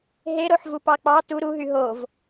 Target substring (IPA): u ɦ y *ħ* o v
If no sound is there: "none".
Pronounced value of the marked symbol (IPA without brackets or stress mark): ɦ